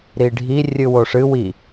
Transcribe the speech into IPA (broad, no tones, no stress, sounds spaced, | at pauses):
ɾ i ɖʱ i rʲ ɨ w o ʂ ɨ w i